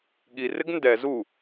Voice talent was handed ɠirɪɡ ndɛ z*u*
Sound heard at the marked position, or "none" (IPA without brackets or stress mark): u